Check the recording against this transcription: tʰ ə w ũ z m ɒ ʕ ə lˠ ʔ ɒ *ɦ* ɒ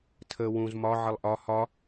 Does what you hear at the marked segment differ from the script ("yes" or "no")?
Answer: yes